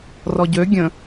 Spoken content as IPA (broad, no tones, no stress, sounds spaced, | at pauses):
r ɔ ɟ ø ɡʲ ə̃